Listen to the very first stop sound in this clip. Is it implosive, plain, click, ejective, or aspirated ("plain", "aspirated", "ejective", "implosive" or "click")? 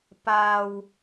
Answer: plain